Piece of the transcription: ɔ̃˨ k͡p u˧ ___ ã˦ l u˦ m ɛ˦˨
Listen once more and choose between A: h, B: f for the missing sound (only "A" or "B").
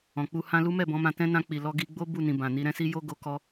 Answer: A